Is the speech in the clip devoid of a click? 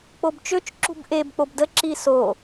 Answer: no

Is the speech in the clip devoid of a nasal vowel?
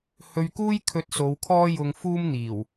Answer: yes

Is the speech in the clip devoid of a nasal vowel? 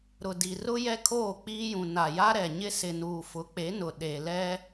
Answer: no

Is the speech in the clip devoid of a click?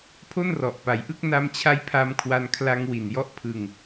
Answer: yes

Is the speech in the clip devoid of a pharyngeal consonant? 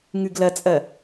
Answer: yes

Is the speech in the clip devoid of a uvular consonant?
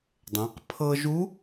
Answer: no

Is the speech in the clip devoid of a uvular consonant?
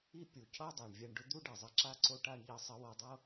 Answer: yes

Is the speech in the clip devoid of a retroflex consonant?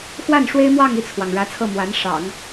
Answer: no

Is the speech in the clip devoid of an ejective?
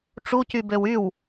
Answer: yes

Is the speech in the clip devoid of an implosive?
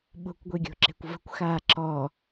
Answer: no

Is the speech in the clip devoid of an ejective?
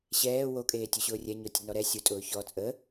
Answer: no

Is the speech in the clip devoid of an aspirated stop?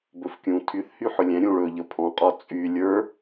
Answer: no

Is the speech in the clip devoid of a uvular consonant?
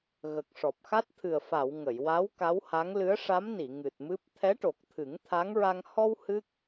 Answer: yes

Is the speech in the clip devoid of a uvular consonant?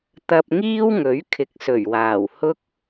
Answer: yes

